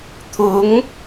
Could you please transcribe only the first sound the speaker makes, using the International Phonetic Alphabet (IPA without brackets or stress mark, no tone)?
t̪ʰ